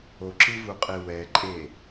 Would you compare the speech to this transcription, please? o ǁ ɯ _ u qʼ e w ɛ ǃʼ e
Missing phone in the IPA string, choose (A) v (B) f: A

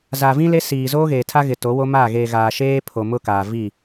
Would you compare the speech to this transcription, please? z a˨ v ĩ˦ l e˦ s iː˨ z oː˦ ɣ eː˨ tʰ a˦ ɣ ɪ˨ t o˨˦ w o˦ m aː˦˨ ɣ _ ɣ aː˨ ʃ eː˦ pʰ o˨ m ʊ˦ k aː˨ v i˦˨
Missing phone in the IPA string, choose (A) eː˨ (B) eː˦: A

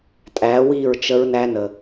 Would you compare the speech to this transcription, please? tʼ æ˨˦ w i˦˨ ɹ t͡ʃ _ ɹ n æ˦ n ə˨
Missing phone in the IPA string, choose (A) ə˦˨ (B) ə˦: B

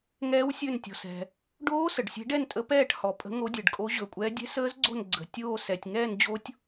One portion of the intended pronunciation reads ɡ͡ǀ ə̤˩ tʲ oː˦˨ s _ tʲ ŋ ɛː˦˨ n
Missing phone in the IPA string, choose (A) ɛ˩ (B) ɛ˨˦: A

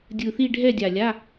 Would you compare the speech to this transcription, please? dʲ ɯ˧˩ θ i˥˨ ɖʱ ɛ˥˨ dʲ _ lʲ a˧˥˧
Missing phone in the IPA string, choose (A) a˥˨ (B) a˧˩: B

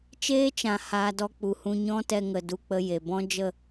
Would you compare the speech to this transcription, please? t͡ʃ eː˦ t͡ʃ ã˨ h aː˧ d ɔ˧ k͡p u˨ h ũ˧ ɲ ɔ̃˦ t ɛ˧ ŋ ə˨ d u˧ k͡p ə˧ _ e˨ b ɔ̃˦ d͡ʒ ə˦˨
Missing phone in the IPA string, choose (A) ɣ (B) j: B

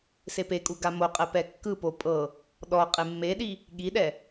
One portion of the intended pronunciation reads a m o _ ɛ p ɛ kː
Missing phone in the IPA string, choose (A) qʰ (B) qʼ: B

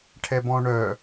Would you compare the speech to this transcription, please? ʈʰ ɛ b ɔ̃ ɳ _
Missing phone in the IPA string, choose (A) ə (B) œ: B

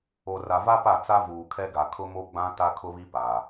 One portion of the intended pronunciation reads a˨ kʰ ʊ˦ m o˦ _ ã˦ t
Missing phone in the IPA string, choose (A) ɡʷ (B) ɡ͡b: B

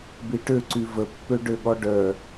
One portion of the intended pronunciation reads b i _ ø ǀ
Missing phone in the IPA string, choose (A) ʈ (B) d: A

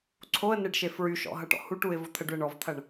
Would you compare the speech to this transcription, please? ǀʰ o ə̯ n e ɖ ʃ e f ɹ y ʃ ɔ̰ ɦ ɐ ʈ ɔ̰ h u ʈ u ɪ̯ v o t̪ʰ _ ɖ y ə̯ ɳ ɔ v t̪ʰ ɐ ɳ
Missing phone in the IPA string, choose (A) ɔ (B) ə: B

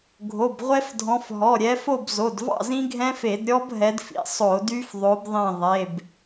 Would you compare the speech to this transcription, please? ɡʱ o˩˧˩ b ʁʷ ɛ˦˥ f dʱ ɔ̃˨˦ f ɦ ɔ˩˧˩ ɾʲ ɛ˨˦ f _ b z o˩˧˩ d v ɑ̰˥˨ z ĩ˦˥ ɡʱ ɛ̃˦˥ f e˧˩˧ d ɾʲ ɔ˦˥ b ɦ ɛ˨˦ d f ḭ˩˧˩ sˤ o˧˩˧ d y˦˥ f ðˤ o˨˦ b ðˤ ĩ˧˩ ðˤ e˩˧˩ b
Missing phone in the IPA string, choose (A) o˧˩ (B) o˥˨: B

